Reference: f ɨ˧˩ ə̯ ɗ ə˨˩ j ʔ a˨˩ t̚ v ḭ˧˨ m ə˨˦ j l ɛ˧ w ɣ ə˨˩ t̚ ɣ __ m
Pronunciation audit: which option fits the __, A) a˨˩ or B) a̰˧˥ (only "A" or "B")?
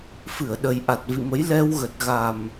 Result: A